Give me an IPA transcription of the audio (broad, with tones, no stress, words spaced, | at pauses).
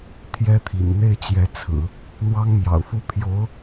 t̪ʰjɛ˥t̪ʰḭ˨˩n n̪e˥˩ɪ̯t͡ɕjɛ˧˥t͡sʰɹ̩˨˩˦ | n̪wɑ˥ŋmjɑ̰˨˩ʊ̯fu˥ pʰjo˧˥ʊ̯